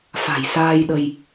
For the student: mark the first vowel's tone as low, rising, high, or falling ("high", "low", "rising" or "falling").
low